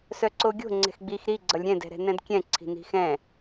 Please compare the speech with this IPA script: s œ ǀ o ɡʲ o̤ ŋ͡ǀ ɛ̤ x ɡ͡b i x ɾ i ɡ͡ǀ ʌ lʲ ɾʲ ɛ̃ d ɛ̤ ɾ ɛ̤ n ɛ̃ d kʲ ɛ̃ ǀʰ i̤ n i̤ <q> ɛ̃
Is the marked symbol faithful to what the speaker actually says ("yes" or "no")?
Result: no